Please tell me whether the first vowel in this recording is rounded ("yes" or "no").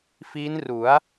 no